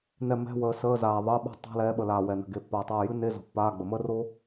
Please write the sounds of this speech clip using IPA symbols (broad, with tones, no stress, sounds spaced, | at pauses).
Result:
n ɛ˦˨ m ɛ̤˧˥˧ w əː˨˦ s əː˧˥˧ z aː˨ ðˤ əː˧˥˧ ɓ a̤˥ tˤ a̤˧˥˧ l ɛː˨˦ ɓ ə˨ l aː˨ w ɛ˨ n ə̤˨ ɡ e˨ pː aː˨ tˤ aː˦˨ j ɨ˥ n e˧˥˧ z o̤˨˦ pː aː˧˥˧ ɡ͡b ə˨ m əː˥ r o˥